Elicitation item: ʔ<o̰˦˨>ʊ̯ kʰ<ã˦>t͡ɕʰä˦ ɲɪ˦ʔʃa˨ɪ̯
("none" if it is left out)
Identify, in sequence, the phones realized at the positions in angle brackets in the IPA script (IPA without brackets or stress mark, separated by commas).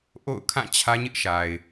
o̰˦˨, ã˦˨